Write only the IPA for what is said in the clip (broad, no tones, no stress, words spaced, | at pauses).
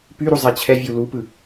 pyɾu zˤɛt͡ɕʰɛvʲu lupɯ